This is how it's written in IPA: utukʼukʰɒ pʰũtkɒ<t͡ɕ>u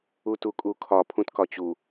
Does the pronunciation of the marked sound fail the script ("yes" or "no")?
no